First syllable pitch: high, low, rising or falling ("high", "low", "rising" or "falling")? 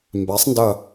rising